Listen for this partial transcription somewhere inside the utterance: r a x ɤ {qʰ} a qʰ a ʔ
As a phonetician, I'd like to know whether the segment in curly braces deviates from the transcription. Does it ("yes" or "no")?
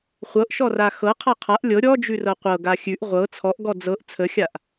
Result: no